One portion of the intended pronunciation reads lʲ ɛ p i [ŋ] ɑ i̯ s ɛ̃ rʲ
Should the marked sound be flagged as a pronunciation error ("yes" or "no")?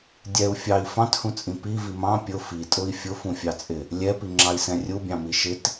yes